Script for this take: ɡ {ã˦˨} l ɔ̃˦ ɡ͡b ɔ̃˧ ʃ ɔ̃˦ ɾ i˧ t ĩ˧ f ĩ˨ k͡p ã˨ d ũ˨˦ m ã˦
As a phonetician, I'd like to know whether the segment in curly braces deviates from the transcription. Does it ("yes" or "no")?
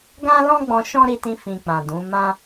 yes